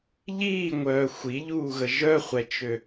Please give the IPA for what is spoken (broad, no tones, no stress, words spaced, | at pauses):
ʎiːŋʷœː xʷiʎuːɣə ʒœχʷɛt͡ʃø